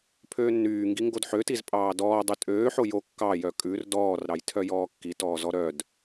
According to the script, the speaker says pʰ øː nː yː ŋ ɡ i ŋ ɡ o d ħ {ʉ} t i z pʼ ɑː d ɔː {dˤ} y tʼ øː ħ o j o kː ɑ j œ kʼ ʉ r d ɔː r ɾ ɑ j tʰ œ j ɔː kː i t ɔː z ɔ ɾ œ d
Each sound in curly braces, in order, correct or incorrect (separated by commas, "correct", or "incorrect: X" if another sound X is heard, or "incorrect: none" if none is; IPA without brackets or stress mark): incorrect: ø, correct